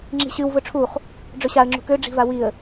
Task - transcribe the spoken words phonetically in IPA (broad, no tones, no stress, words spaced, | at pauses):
ŋ͡ǁi̤ɕɨw vɵʈ͡ʂʰuχ | ɖ͡ʐɵɕaə̯ ŋ͡ǁṳkø ɖ͡ʐi̤vawiə̯